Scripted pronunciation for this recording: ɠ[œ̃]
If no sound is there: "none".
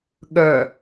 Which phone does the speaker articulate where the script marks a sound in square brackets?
œ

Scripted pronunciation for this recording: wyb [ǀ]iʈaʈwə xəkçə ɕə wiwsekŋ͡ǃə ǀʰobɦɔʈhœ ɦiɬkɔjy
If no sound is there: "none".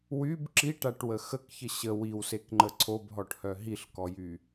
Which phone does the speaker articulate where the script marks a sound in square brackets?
ǁ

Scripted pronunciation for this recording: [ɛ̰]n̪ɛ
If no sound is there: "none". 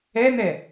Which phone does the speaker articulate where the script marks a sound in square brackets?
ɛ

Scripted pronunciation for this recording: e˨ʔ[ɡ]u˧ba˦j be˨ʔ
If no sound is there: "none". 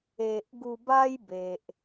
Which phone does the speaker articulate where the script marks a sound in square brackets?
ɡ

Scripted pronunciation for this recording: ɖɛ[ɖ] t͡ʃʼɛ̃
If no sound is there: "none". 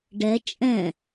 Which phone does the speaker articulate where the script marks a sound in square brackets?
none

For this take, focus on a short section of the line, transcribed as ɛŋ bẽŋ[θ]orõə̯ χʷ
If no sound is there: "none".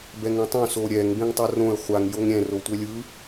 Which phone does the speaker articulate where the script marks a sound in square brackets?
tˤ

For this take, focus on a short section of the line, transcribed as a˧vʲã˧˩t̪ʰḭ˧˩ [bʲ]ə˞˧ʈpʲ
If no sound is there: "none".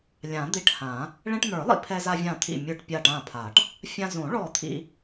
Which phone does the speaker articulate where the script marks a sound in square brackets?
mʲ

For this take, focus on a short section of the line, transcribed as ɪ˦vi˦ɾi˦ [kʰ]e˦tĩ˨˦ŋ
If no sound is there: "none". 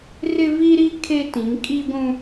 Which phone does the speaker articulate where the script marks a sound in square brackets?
kʰ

